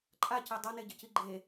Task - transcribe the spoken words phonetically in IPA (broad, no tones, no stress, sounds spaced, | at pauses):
ǃʼ a c e dˤ ʌ n e ɟ ə c i ɡ͡ǃ e